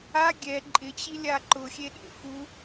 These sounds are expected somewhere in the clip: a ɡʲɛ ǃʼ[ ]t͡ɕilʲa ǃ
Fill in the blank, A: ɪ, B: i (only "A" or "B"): A